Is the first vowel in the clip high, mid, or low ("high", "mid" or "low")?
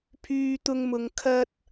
high